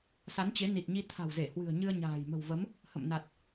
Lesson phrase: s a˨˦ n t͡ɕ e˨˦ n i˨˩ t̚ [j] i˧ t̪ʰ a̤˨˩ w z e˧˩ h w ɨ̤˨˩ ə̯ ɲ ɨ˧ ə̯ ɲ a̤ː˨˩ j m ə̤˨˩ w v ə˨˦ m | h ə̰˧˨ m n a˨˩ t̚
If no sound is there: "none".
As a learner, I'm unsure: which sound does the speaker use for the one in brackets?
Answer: ɲ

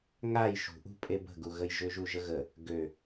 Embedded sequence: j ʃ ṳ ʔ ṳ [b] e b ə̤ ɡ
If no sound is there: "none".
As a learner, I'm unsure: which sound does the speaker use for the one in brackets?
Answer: pʼ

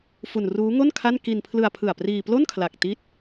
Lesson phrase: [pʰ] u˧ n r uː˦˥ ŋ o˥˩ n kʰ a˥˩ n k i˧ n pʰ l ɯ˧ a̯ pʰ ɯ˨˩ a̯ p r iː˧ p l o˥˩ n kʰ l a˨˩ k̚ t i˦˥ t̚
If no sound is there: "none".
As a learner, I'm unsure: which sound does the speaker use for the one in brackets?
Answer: f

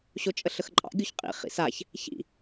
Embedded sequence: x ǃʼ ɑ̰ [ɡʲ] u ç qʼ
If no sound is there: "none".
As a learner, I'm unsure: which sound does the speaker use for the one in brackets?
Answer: ɡʲ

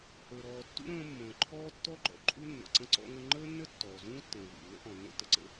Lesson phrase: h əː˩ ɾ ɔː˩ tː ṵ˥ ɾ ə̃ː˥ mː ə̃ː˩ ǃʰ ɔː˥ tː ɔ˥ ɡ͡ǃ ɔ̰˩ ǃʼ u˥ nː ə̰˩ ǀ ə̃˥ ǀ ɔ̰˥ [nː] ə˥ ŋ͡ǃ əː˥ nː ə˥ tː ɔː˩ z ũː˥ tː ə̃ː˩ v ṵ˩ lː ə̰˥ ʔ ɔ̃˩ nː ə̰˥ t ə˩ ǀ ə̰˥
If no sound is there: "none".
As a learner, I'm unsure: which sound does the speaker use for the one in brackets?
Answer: ŋ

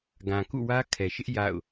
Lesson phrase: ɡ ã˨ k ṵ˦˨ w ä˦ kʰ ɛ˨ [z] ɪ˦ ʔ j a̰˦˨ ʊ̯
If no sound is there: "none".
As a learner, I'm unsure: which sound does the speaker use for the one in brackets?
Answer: ʃ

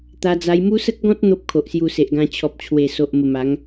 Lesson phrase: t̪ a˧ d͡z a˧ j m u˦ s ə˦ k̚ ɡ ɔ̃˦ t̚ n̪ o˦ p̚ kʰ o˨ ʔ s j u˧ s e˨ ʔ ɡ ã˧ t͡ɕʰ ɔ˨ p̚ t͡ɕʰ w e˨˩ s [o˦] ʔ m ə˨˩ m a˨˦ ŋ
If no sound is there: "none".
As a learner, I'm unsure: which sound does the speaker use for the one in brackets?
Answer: o˨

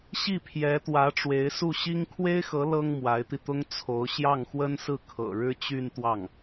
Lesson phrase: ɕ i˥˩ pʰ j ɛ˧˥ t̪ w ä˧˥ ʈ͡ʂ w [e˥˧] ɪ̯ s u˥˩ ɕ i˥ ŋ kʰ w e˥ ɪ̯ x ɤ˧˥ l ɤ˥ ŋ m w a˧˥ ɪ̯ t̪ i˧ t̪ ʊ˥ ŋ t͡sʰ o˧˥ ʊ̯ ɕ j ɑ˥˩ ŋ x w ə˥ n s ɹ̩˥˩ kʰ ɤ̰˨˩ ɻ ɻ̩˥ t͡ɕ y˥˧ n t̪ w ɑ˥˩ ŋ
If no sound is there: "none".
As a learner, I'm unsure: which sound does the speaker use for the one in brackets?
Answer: e˧˥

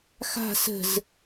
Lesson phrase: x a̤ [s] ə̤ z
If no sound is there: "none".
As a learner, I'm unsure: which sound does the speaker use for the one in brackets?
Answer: s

